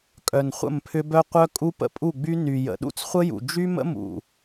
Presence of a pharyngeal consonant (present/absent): absent